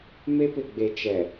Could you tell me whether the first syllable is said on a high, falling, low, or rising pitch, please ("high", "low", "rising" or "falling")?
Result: high